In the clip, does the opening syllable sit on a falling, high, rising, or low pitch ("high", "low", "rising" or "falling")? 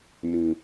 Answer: low